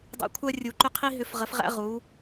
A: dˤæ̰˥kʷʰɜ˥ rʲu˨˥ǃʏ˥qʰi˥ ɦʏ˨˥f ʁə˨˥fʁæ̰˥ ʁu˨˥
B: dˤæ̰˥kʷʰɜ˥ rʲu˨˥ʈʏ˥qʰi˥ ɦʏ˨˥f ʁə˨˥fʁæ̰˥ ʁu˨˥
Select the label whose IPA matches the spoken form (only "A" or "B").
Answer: A